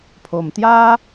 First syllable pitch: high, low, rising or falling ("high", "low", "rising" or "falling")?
low